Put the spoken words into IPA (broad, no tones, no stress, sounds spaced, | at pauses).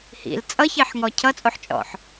h ḭ l t͡sʼ ʌ ç e ħ ŋ ɔ cʰ ʌ t͡sʼ o ħ t͡ʃʼ ɔ̰ ħ